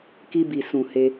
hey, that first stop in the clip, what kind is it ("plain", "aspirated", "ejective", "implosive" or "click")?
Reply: plain